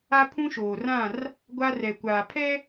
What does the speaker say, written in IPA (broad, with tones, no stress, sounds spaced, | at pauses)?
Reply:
a˦ pʰ ũ˦ ʃ oː˨ r ã˦˨ r | ɡʷ a˦ r ɛ˨ kʷ aː˨ pʰ ɛ˦